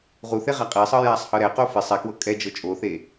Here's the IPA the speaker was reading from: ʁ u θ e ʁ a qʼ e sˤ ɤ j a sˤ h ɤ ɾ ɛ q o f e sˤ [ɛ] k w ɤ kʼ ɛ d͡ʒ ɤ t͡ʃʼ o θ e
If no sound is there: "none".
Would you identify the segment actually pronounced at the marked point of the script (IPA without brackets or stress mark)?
ɛ